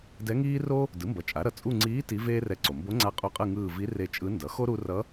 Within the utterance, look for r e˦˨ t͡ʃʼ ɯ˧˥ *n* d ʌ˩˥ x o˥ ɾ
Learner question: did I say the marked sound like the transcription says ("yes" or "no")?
yes